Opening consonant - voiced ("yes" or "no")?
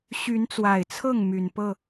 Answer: no